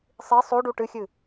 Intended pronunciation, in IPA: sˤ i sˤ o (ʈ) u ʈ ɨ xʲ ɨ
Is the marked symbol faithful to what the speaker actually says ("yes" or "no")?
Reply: no